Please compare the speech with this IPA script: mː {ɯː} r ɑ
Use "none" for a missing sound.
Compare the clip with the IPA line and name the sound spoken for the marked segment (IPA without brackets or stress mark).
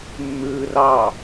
ɯː